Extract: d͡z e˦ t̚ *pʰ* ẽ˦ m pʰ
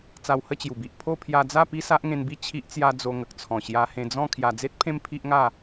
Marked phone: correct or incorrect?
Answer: correct